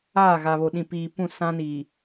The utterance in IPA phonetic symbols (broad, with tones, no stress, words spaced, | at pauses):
aː˦˨ɣa˨βo˨ ɗĩ˨piː˨pũ˦˨ sã˦ni˨